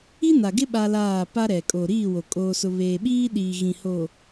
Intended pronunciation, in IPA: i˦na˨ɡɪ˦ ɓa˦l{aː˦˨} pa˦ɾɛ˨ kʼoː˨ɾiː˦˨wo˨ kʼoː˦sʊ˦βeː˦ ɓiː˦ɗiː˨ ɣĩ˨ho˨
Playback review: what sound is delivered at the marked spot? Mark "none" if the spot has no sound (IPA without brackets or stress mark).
aː˦˨